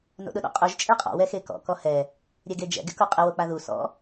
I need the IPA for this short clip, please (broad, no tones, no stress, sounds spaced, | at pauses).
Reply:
n o̰ ɗ ʊ ɗ ɔ̰ qʼ u ʒ t͡ʃʼ e qʼ ɔ̰ w ɛ x e k ɔ̰ k ɔ h ɛ | ɾʲ ɛ ɡ e d͡ʒ ɛ̰ ɡ ɪ k u qʼ ɪ w o k͡p a ð u s ɔ̰